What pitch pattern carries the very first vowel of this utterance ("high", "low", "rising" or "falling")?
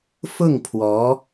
falling